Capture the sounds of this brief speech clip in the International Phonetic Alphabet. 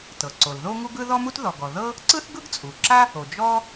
t ɤ˩ ǀ o˩ l ð o˥ ŋ u˥ ɡ ɯ˥ ð ɔ˥ m u˥ t ð ɔ˩ ɡ ɔ˩ ð ɤ˥ | ǀ ɯ˥ θ ɡ ɯ˥ ɡ t͡sʼ u˩ ǁ a˥ | o˩ d͡ʒ ɔ˥

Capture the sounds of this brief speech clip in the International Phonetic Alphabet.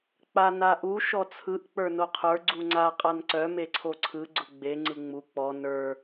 k͡p a n a ʔ u ʃ ɔ t͡sʰ ɯ ʔ k͡p ə˞ n o qʰ ə˞ ɡ͡ǀ u ŋ͡ǀ a qʼ a n ǀ œ m e ǀʰ o ǀʰ ɯ ɡ͡ǀ ʊ ɡ͡b e ŋ͡ǀ ɯ ŋ͡m u k͡p ɔ n ə˞

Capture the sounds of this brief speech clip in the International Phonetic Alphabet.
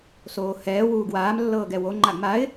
s oː h ɛː w uː ɡ w aː m lː ɤː ɡ ɛ w o ŋ͡ǃ a ɡ m a ɪ̯

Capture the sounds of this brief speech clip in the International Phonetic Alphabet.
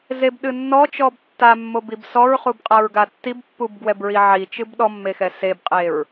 z e b ɗ ɨ nː ɔ t͡ʃ ɔ b tː a mː o b i b s ɔ ɹ χ u b qʼ a ɹ ɡ a tː i b pː u b ɡ w ɛ b ɹ i ʕ i t͡ʃ ɨ b ɗ ɔ mː e x ɛ s e b qʼ e ɹ

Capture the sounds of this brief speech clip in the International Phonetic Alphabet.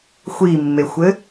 xʷ i mː e xʷ ɘ

